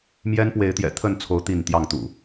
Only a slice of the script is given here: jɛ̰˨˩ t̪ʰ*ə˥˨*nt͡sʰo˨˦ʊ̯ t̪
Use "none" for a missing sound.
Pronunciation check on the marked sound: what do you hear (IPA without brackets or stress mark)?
ə˥˨